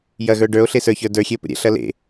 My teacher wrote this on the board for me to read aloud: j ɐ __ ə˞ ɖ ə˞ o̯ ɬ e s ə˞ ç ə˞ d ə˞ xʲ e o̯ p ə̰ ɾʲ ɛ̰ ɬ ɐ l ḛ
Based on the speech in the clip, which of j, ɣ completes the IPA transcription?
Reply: ɣ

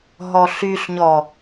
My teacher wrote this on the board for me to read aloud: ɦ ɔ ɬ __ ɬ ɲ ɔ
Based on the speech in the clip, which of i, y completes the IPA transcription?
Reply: y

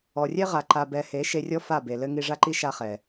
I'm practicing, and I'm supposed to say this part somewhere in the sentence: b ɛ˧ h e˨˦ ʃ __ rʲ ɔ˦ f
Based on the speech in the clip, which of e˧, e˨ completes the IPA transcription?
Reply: e˧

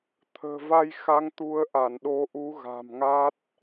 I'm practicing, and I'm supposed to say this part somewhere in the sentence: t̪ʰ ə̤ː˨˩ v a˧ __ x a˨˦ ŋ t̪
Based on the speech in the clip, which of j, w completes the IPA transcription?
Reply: j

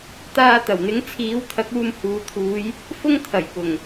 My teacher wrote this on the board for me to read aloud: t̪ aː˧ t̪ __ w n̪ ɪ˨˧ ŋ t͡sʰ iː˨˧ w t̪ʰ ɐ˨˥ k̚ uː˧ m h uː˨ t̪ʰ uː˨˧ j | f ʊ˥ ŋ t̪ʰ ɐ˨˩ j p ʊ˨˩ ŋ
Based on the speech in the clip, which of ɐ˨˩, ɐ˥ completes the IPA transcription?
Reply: ɐ˨˩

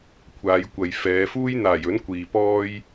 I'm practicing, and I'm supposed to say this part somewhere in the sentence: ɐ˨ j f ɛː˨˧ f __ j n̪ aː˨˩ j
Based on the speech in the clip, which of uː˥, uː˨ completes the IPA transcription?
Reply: uː˥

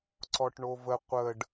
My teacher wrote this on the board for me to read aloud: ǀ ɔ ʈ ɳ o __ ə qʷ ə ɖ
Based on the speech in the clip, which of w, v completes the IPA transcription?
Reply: v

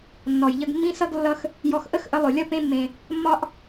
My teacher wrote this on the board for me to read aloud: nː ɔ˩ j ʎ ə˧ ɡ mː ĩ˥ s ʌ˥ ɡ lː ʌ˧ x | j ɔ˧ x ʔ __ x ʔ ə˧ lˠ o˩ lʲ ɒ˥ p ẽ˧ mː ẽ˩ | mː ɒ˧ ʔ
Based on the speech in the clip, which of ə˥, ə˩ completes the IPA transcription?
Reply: ə˥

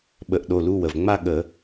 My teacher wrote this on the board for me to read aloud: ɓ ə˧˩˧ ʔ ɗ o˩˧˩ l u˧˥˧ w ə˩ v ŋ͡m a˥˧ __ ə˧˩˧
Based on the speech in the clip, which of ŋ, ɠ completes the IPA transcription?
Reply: ɠ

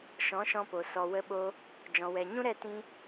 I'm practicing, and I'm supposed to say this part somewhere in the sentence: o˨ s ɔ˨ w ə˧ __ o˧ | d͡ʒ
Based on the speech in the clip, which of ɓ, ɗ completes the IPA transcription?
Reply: ɓ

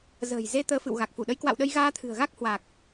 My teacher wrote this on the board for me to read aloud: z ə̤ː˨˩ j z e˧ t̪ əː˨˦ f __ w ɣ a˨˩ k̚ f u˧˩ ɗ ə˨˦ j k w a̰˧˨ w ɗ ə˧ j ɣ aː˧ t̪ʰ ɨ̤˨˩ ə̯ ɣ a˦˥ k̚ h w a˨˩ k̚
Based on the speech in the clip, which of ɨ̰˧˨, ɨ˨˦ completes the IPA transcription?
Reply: ɨ̰˧˨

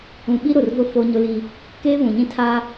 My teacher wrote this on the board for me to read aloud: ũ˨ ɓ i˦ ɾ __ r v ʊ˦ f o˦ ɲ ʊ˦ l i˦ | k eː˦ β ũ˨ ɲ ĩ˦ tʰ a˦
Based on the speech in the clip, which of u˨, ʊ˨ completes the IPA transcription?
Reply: ʊ˨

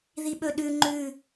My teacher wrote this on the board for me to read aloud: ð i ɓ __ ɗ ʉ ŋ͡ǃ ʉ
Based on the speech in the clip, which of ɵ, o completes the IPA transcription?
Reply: ɵ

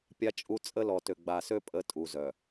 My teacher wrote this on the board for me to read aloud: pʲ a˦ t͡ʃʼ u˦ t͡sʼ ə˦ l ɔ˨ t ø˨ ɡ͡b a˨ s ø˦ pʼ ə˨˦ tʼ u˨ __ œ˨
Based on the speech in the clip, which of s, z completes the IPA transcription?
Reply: z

